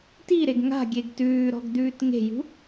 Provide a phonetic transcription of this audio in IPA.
t i ɾ e ɡ ŋ a̤ ɡʲ e ɡ t ʉː ɾ ɔ̤ ɡ d̪ ʉː t ŋ e̤ j ṳ

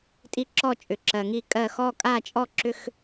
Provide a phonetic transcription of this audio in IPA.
tʼ i˥˧ ǁ ɔ˥˧ t͡ʃʼ ʏ˨ ǁ ɜ˨ ŋ i˥˧ kʼ ɜ˥˧ x ɔ˥˧ kʼ a˥˧ t͡ʃʼ ɔ˥˧ ǁ ʏ˥˧ x

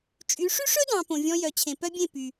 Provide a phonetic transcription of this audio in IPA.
t͡ʃʼ y˨˦ ʂ y˦ ʂ ɵ˦ d ɑ̃˨ p õ˨ vʲ ɔ̃˧ j œ˨ t͡ɕʰ ẽ˨ p œ˦ bʲ ẽ˦˨ p y˨

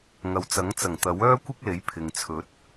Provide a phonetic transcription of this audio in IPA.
ŋ ɐ˨ w t͡s ɐ˨˥ ŋ t͡s ɐ˨˩ ŋ t̪ ɐ˨˥ w œː˥ kʷ ɪ˥ k̚ l e˨˥ j pʰ ɪ˨ ŋ t͡sʰ ɵ˨˥ t̚

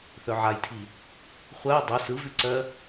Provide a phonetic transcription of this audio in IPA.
θ œ ʕ a j tʰ i | χʷ ɜ i̯ dˤ ʉ s ɯ v ʉ ǀ ɜ

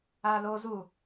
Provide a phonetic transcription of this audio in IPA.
a l o z u

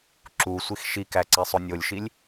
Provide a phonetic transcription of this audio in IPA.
ǁ u sʷ i x ʃ i k æ ǀ e sˤ o nʲ o lʲ ʃ i lʲ

